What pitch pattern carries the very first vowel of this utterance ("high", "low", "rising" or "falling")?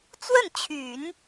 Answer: falling